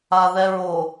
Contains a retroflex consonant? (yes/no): no